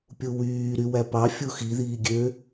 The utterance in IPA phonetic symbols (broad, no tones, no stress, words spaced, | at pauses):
pʲuwyː ɾywæpɑ fʲuxi ðiːɡʲø